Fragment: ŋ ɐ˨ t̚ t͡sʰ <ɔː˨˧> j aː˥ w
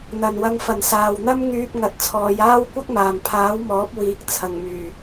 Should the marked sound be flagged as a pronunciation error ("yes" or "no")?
no